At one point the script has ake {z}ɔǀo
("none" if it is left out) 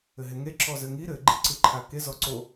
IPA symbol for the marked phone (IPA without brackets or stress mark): z